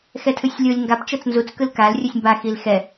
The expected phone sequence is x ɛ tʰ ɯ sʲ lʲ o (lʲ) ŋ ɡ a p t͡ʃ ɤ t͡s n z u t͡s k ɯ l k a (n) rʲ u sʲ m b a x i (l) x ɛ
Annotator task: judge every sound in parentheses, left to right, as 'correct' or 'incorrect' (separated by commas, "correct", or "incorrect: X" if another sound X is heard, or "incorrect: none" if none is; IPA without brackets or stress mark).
correct, incorrect: l, correct